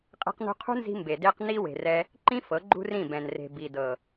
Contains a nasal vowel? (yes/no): yes